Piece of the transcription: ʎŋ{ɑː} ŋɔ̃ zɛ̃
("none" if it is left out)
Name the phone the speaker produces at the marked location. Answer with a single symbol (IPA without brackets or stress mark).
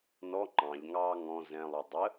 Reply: ɑː